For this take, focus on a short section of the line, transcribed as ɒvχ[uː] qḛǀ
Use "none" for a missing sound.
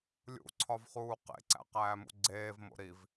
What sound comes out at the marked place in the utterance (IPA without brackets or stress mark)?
uː